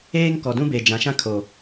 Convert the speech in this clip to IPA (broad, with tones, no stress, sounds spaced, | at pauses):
eː˦ ŋ k ɔ˨ d ũ˦ b e˨ d͡ʒ ã˨ ʃ ã˦ kʰ o˨